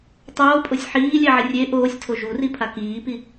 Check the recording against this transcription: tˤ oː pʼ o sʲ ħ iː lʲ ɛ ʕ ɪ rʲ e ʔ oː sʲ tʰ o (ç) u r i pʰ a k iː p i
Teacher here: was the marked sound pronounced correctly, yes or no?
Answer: no